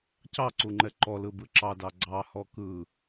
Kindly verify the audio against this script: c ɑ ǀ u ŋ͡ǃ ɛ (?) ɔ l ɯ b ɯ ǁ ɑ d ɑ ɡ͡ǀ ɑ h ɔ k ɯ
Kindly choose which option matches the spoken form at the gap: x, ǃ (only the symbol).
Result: ǃ